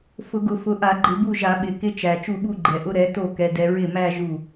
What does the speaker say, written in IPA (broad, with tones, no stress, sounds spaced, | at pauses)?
f ʊ˧˩˧ ɡ ʊ˧˩˧ f ʊ˩˥ ʔ a˧˩˧ ɡ͡ǃ ɪ˧˩˧ b u˥˩ ʒ a˧˩˧ ɓ ɪ˨˩ k ɪ˧˥ t͡ʃ æ˨˩ t͡ʃ u˥˩ ɓ u˥˧ ɡ͡ǃ ɛ˨˩ ʔ ʊ˧˥ ɾ ɛ˩˥ t o˥˩ k ɛ˧˥ d ɛ˧˥ ɹ ɪ˥˩ m æ˥˧ ʒ u˥˩